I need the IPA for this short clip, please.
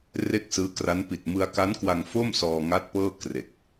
r e˥˩ k̚ s ɯː˦˥ k r a˦˥ n p i˨˩ t̚ m ɯ˧ a̯ k a˦˥ n k w a˧ ŋ f o˥˩ m s ɔː˧ ŋ a˦˥ t̚ p ɤː˥˩ k r e˨˩ k̚

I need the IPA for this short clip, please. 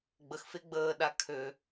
ɡ͡b ə x f e ɡ͡b əː ɗ a kʰ ø

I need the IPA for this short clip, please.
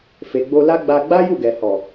f e˨ ɡ͡b o˧ l a˦ ɡ͡b a˧ ɡ͡b a˦ j u˦˨ ɡ ɛ˨ h ɔ˨

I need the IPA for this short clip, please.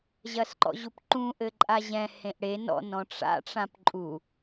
ʑ ɐ s ǃ ɔ̰ ʑ u p ǃ ũ ʔ ɘ ǃʼ a ʑ ɛ̃ h ẽ ʔ ɽ e n ɔ̰ n ɔ̃ ʈ͡ʂ a̰ ʈ͡ʂ ã p ǃʼ u

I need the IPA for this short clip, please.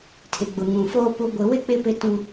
tʰ ɪ˨ ɡ͡b ʊ˨ ŋ ũ˨ f oː˦ p u˨ ɡʷ ɪ˨ w ɪ˦ k͡p ɪ˦ p ɪ˦ t ũ˦

